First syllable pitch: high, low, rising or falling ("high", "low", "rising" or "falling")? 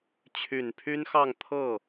low